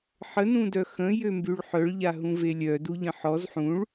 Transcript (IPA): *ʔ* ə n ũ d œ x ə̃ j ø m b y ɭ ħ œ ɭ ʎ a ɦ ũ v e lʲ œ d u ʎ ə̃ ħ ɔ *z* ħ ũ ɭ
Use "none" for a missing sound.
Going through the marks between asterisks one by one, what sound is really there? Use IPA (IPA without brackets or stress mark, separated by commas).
ħ, z